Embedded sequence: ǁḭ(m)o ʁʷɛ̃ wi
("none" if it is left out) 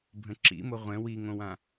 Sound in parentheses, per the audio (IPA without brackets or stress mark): m